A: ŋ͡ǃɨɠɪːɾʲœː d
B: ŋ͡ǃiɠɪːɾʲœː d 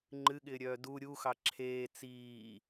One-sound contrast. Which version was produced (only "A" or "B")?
A